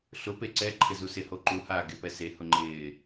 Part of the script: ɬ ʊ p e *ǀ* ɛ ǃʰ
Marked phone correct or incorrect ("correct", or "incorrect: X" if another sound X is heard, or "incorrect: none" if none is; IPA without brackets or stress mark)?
correct